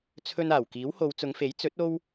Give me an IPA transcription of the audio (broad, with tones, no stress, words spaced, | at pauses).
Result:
t͡sʰɵ˧n aː˨˩wkiː˨˥who˨˧w t͡sʊ˨˧ŋfe˨˥j t͡sɵ˨˥t̚ o˥w